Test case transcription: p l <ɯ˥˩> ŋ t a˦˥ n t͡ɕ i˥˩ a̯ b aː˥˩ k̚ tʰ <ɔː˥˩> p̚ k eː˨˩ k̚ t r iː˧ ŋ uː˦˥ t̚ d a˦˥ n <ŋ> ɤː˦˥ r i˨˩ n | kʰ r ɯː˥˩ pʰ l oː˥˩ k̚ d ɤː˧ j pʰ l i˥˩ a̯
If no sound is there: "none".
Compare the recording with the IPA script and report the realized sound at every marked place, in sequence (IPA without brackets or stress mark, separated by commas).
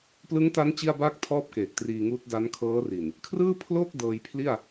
ɯ˦˥, ɔː˥˩, kʰ